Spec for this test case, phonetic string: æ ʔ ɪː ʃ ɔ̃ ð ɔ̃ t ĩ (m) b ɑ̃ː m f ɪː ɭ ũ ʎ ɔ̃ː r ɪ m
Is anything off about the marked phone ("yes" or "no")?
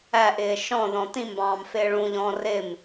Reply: no